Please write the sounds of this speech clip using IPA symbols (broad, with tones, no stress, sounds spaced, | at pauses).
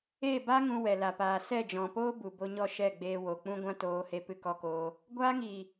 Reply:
e˦˨ b a˦ ŋ ũ˧ w ɛ˨ l a˨ p aː˨ s ɛ˦˨ d͡ʒ ɔ̃˨ p oː˦ b u˨ b o˧ ɲ ɔ˦˨ ʃ ɛ˦˨ ɡ͡b eː˧ w o˨ k͡p ũ˧ ɡʷ ã˦ t oː˧ h e˧ p ɨ˧ k ɔ˧ k oː˧ | ɡʷ aː˧ ŋ iː˨